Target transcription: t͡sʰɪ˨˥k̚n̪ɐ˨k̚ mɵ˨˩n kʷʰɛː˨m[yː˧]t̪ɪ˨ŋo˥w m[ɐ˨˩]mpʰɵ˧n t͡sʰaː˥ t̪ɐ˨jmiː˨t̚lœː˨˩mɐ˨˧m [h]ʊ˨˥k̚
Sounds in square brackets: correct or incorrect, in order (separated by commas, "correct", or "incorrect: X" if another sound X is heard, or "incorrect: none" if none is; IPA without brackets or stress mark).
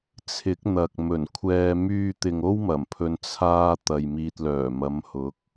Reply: correct, correct, correct